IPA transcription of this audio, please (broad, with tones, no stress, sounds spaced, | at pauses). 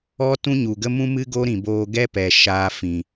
ɔ˦ t ũ˦ ɲ u˨ ɡ ə˦ m ũ˦ m ɨ˦ ɡ o˦ ɾ ĩ˨ b oː˧ ɡ ɛ˦ p ɛ˧ ʃ aː˧ f ĩ˨